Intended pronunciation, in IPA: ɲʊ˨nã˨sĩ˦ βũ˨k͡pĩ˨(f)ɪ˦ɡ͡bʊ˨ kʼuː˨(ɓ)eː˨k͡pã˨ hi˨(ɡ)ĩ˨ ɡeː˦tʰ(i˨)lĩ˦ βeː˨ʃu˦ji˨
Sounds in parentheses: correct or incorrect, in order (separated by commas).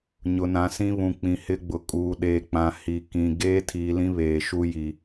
incorrect, incorrect, incorrect, incorrect